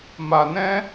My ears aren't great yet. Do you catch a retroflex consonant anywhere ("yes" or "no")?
no